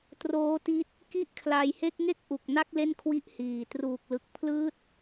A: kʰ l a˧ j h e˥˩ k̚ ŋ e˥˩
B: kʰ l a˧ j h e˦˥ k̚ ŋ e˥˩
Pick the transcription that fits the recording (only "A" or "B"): A